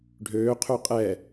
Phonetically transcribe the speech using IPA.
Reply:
ɖʱ øː qʰ ø qʼ ɛ

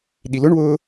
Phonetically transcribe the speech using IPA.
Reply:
ɗ i l ʊ ɳ w ʊː

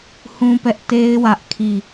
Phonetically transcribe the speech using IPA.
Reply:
h ũ˦ p ɛ˦ ʔ t e˦ ɪ̯ w ä˦ ʔ kʰ i˦˨

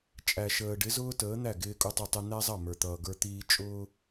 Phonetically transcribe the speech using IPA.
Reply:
t͡ʃʼ æ˨ ʃ əː˨ ɖ ɪ˨˦ z ʊː˦ t əː˨˦ n̪ æ˦˨ ɡ ɪː˦ kʼ u˦ tˤ ə˦ tˤ ɪ˦ n̪ æ˦ zˤ ʌ˦˨ m ə˞˨ t̪ ʌː˨ ɡ ə˞˦ t̪ iː˦ t͡ʃʼ ʊː˦

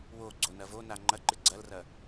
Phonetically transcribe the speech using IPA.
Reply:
w o ɡ͡ǀ o n ɐ v o n a ŋ͡ǃ ɐ ǃ ɨ ɡ͡ǀ ɐ l r ɐ

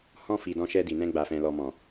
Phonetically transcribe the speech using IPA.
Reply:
h ɔ̃˧ f i˨ d ɔ̃˧ ʃ ɛ˧ d i˨ n ɛ̃˧ ɡ͡b a˨ f ɛ̃˨ l ɔ˨ m ɔ̃˨

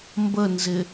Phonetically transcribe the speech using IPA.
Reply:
m b ə n z ɪ

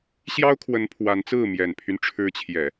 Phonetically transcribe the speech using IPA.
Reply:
ɕ j ɑ˥ ʊ̯ kʰ w ə˧˥ n pʰ w a˧˥ n t͡s ɹ̩˥˩ m j ɛ˨˩ n pʰ y˦ n ʈ͡ʂʰ ɻ̩˧˥ t͡ɕʰ j ɛ˨˩˦

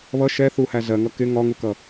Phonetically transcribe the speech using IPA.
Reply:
β ʌ ʃ ɛ θ u h æ z ɜ ŋ ʌ k ɪ ŋ ɒ ŋ u k ʌ

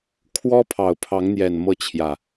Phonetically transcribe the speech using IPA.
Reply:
kʰ w ɔ˦ pʰ ɑ˨˩ ʊ̯ pʰ ɑ˨˦ ŋ n̪ j ɛ˨˩ n m ɤ˥˨ t͡ɕʰ j ä˨˩

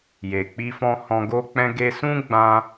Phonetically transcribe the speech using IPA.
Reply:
j e˨ k͡p i˧ f ɔ̃˧ h ɔ̃˧ ɡ o˦ k͡p ɛ̃˦ ɡ e˧ s ũ˦ ɡ͡b ã˦

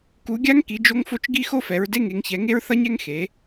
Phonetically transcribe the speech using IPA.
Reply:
k u˨˦ ɡʲ a˥ ŋ k i˨˦ d͡ʒ o˥ ŋ f o˥ t͡ʃ ɡ i˥ x o˥ f ɛ˨˦ ɹ d e˥ ŋ e˨˦ ŋ ç ɛ˨˦ ŋ e˥ ɹ θ ʌ˥ ɲ ɛ˥ ŋ x e˨˦

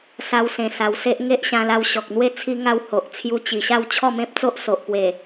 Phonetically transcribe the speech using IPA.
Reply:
s a˧ w s ẽ˨˩ s a˨˩ w s e˦ ʔ ŋ e˦ ʔ ɕ ã˧ l a˧ w ɕ ɔ˨ k̚ n̪ w e˥˧ t͡sʰ i˦ ŋ a˦ w h o˨ ʔ t͡sʰ j u˧ t͡ɕ i˨˩ ɕ a˥˧ w t͡ɕʰ ɔ˥˧ m ẽ˦ p̚ t͡s o˦ ʔ s o˨ ʔ p w e˨˩

